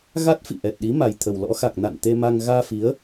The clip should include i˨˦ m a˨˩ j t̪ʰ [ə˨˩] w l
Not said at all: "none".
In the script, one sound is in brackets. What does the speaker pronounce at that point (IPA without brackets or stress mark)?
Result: ə˨˩